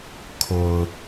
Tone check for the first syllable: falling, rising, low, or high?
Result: low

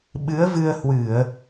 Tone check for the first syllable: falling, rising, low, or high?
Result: rising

